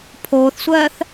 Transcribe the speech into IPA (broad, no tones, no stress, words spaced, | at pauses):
pʰoːθsʷɜːθ